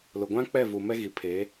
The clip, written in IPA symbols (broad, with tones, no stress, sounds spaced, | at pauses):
l ʊ˨ ɡʷ ã˦ k͡p ɛ˦˨ v u˨ m ɛ˦ ɣ i˨ pʰ eː˨˦